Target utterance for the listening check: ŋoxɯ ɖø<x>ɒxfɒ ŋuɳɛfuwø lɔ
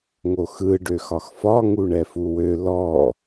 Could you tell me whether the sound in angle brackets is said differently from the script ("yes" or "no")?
no